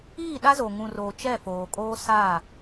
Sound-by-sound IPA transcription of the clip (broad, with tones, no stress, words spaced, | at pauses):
iː˦˨ɗa˦zo˨ ŋũ˨roː˨ t͡ʃɛ˦˨foː˨kʼoː˦ sa˦˨